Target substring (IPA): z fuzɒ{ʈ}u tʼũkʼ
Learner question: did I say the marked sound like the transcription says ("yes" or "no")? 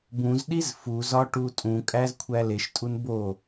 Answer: yes